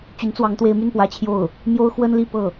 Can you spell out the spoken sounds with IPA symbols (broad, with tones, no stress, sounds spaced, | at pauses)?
t͡ɕ y˧˥ n t͡s w ɑ˧˥ ŋ t̪ w e˧˥ ɪ̯ m y˥˩ n p w ä˧˥ t͡ɕʰ j o˥˩ ʊ̯ | m j o˥ ʊ̯ x w ə˥ n l i˥˧ p ɤ˥˩